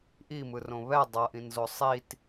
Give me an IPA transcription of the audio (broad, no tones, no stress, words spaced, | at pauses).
ʔimɯrõ βɛ dˤʌʔĩnzo sˤit